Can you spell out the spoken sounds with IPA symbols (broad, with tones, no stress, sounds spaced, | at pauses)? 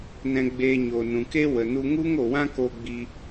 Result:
n ɛ̃˧ ɡ͡b eː˧ ɲ o˨ n ũ˨ k e˦ w ə˨ n u˧ ŋ u˦ ŋ o˨ w ã˦ k o˧ ɡ͡b i˧